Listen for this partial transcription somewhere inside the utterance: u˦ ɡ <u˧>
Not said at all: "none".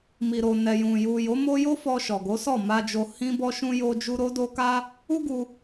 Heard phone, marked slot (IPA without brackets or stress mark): u˧